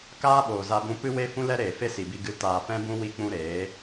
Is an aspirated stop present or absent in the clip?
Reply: absent